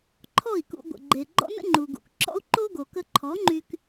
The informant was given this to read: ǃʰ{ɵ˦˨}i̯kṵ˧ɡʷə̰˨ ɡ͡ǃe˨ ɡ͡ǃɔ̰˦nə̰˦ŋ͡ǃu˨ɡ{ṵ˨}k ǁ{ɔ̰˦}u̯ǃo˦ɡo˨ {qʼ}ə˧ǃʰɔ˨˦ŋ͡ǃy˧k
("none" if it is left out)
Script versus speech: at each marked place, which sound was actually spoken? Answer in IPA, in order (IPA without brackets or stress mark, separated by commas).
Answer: ɔ˦˨, ṵ˨, ɔ̰˦, k